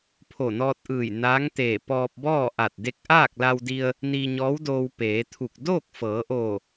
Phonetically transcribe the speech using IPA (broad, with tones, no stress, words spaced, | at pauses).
pʰo˧˩nɔː˧t̚ʔɯː˧˩j naː˧˥ŋt̪eː˧˩ pɔː˧p̚bɔː˥˨ʔa˧˩t̚ de˧k̚ʔaː˥˨k̚la˧wdi˧ə̯ | niː˧ɲɔː˧˥wdoː˧w peː˩˧t̪ʰu˧˩k̚ doː˥˨k̚fɤː˩˧ʔoː˧˩